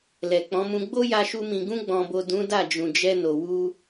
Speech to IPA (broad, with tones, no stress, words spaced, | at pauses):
lɛ˨k͡pɔ̃˨˦mũ˧ ɡ͡bo˦ja˧ʃu˧ mĩ˨ɡũ˧ɡ͡bɔ̃˨bo˨ dũ˨˦ da˦˨d͡ʒũ˨d͡ʒɛ˧no˨ wu˧